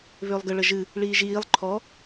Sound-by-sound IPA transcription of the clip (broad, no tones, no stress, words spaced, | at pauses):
βʏːlˠɡə ɭəʒɨ | ɭiːʒiːlˠ ǃʰɔ